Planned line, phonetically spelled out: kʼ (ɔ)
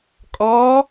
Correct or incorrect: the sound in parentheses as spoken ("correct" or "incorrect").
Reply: incorrect